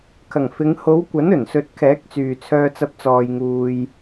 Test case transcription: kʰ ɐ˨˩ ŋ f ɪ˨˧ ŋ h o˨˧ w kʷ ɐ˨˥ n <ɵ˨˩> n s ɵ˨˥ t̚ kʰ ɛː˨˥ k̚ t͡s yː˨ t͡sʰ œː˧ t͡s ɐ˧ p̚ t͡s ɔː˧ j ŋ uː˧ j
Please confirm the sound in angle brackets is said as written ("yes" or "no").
yes